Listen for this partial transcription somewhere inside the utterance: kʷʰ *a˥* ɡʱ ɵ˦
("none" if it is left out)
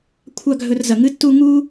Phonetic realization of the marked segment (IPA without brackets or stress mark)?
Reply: a˥